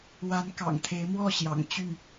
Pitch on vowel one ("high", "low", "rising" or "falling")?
rising